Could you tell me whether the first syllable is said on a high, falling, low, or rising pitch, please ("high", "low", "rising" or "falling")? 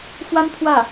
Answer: high